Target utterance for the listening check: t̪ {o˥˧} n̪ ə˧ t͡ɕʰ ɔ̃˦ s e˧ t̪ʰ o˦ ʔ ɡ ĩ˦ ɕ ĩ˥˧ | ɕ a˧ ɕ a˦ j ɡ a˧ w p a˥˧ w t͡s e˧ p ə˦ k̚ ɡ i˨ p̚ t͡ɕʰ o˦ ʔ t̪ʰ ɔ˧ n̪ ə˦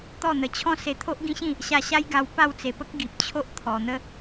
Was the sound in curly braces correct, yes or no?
no